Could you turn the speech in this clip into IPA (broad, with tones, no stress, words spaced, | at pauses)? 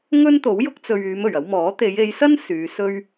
ŋɵ˥nt̪o˨˥w jʊ˥k̚t͡sɵ˧ɥ yː˨˧mɵ˨˩ɥ ɐ˨˧wmɔː˨˥t̪e˨˧j e˨˧jsɐ˥n syː˨˧sɵ˥ɥ